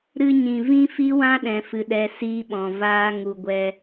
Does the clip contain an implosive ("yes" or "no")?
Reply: yes